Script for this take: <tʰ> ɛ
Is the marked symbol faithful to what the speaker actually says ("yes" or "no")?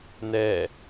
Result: no